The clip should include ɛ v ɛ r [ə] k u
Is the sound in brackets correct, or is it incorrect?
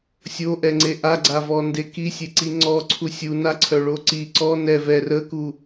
correct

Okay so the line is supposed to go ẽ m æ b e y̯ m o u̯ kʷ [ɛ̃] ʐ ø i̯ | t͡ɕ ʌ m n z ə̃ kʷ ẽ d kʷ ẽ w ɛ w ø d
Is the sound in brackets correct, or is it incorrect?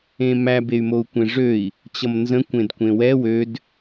incorrect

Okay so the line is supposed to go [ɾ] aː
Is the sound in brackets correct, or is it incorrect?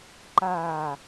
incorrect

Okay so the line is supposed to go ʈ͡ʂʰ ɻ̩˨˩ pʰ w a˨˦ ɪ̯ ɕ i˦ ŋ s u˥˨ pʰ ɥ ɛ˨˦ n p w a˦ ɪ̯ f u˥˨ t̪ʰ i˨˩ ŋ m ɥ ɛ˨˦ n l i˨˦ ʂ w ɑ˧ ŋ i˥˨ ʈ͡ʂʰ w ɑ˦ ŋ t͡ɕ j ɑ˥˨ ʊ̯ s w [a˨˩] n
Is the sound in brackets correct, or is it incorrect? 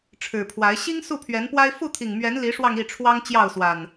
correct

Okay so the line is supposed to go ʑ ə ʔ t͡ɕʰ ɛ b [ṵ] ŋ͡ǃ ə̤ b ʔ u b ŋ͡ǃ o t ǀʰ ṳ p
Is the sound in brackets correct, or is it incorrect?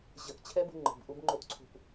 incorrect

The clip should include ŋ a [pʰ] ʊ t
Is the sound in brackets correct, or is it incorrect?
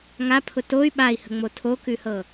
correct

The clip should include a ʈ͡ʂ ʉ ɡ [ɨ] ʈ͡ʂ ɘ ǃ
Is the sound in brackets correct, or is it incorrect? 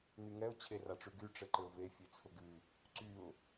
incorrect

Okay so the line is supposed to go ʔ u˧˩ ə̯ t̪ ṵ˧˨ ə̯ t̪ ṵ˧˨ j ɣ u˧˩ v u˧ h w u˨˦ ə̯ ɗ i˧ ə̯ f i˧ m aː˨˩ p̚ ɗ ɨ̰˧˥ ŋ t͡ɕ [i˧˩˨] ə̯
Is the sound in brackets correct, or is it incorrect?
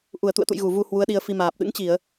correct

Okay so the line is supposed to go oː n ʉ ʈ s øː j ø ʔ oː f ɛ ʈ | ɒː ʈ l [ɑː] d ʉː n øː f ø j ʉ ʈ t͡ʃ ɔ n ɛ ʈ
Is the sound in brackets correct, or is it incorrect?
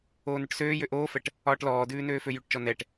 incorrect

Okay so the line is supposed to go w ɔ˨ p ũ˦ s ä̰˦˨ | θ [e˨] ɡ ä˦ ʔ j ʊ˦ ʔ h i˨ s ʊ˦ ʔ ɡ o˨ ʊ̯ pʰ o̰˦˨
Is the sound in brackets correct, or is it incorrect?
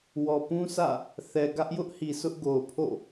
incorrect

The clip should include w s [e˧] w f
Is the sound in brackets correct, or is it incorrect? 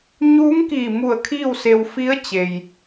correct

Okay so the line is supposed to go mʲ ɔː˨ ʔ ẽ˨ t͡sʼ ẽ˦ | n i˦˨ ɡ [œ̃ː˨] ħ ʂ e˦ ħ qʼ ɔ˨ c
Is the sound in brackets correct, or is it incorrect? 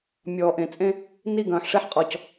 correct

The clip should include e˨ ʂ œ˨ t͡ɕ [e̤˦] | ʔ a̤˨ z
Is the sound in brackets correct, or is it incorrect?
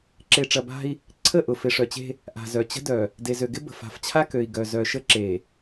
correct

